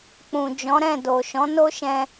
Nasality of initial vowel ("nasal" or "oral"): nasal